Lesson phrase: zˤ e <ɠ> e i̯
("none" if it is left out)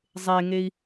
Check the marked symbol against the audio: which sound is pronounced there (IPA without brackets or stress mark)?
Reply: ŋ